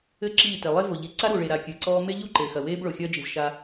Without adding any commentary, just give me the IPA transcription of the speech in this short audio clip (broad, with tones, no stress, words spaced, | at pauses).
ɘ˦ ǁiː˦˨te˨ lˠe˦vo˨ʎi˨ ǀa˦ɾu˨ɭe˨ɾa˨ kʲɨ˨ǀɔː˦ me˦ʎu˦ ǃeː˨xɐ˨weː˦b ɭo˨xʲɐː˦d͡ʒi˨z ʃa˦